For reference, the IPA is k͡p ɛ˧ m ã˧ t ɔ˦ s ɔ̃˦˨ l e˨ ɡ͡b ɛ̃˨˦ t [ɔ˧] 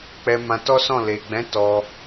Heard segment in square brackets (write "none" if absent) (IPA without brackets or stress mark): ɔ˧